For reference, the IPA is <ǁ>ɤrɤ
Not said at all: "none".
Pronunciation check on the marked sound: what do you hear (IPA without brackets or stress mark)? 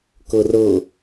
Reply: k